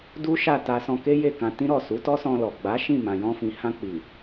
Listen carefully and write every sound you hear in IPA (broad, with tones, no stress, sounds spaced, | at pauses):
d u˦ ʃ a˦˨ t a˧ s ɔ̃˧ k e˦ j e˦˨ k ã˧ t ĩ˦ ɾ ɔ˦˨ s u˨˦ t ɔ˦ s ɔ̃˧ l ɔ˨ ɡ͡b a˨˦ ʃ ĩ˦˨ m ã˨ j ɔ̃˧ f ĩ˨ h ã˧ k͡p i˨